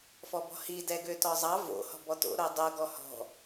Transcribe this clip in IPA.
f ɔ b ɔ̤ h i d ɛ ɡ ø t ɔ zˤ ɑ v o̰ h ɔ̤ b ɔ t o̰ ɾ o dˤ o ɡ ɔ h ɔ̤

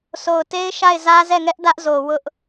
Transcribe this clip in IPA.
s o˨ ʊ̯ t e˦ ɪ̯ ʃ a˦˨ ɪ̯ z ä˦ z ɛ˦˨ ŋ ɛ˦ ʔ d ä˦ ʔ z o˨ w ʊ˦ ʔ

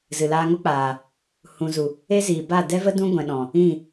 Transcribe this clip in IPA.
z ɨ˨ l aː˧ ŋ o˦ k͡p aː˨ | h ũ˨ z u˨ | e˦ z iː˨ b a˦˨ d ɛ˦ v ə˦ d ũ˦ ɡʷ ɛ̃˨ ɗ ɔ̃˨ | ĩ˦˨

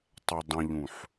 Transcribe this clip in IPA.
tˤ ɛ dˤ ɛ̃ ʎ ũ ħ

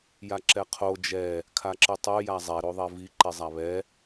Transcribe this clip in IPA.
j a ǁ ɛ qʰ o d͡ʒ ɛ | kʰ a ǁ ɨ tˤ o j a zˤ ɛ ɾ o ðˤ ɛ v i ǃ i zˤ a β ɛ

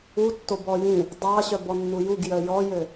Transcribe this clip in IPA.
u tː o b ɔ j ĩ | dˤ ɑ ɕ œ b ɔ nː u j u ɡ j œ j ɔ j ø

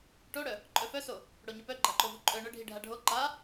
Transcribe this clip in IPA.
ʈ o ɽ œ | ǃʼ œ f œ s o | ɽ o ɲ u p œ ɡ͡ǃ a ǃ o v u ǃʼ œ ɳ œ ɖʱ i ɖʱ a ɖʱ o ǃ a

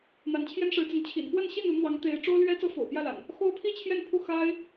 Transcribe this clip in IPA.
n̪ a˨˦ n t͡ɕʰ j ɛ˦ n ʂ ɻ̩˨˦ t͡s ə˨˦ n t͡ɕʰ ḭ˨˩ n p w ə˥˨ n ɕ i˥˨ n u˨˦ n̪ w ɑ˨˦ ŋ t̪ e˨˦ ɪ̯ ʈ͡ʂ o˦ ʊ̯ l ɥ ɛ˦ t͡s ɤ˦ f o̰˨˩ ʊ̯ p j ä˥˨ l a̰˨˩ n | x o˦ ʊ̯ pʰ i˥˨ t͡ɕʰ j ɛ˥˨ n pʰ u˥˨ x a˦ ɪ̯

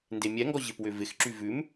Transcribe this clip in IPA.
n d e mʲ ɛ ŋ ɡ ɔ ʑ ɪ p w ʏ v ɪ x ǁ y v ʉ m

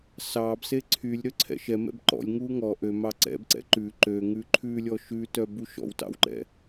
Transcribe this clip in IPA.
s ɑ b s e ǀʰ y lʲ ɾ ø ǀʰ ɛ̰ ʃ ɛ m ɛ̰ b ǃ ɔ̰ lʲ ŋ u ŋ ɔ ʔ ø m ɑ ǀ ɛ̰ b ǀ ɛ̰ ǃ ʉ ǃ ø ŋ ʉ ǃʰ ʉ lʲ ɔ ʃ ʉ t œ b u ʃ ɔ̰ w t ɑ̰ w ǃ ɛ̰

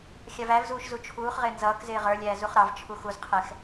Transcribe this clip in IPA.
xʲ ɑ v æ v z uː ʃ z u t͡ʃʰ uː χ ʁ ɪː n z ʌː k z ɪː ʁ ə˞ lʲ æː z u χ ɾ ɑ v t͡ʃʰ u x u z qʰ ɛ x

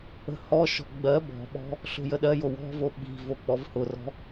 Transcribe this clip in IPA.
ə̤ h ɔ ʃ ɔ̤ ɡ͡b ɜ b ɔ̤ ɓ ɔ̤ | ɬ o̤ j ə ɗ ɜ j o w ɔ̤ v o ɓ i̤ v o k͡p ɔ v h ʊ r ɔ̤

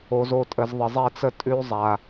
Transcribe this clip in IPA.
o˨ z o˦˨ tʼ ə˨ z ðˤ ə˨ zˤ ɛ˦ t͡s ə˦ tʼ ʉ˦ zˤ a˨

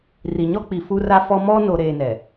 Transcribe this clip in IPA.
r i˨ ɲ ɔ˦ k͡p i˨ f u˦ r a˦ f ɔ˦ m ɔ˦ n o˨ ɾ eː˨ n ɛ˨

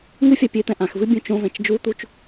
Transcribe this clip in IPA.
ŋ ɨ fʲ a pʲ e t̪ ɛ̃ ʔ ã x v ɨ bʲ ũ t͡ʃ õ v ɛ̃ t͡ʃ d͡ʒ u t̪ u t͡ʃ

